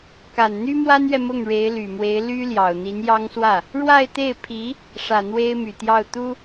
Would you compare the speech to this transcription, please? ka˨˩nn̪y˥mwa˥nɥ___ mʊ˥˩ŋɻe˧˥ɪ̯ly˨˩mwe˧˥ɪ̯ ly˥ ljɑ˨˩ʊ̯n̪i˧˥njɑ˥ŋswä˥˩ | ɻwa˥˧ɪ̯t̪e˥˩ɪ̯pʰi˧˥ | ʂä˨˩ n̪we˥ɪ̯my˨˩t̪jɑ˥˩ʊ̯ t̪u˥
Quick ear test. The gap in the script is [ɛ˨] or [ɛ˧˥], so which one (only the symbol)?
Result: ɛ˨